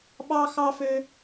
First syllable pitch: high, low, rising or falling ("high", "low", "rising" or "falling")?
high